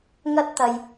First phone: ŋ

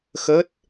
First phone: x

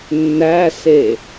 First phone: nː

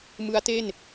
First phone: m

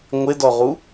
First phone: ŋʷ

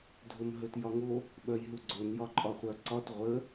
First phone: dʱ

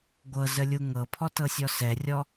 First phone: ɡʷ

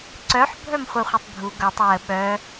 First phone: ǀ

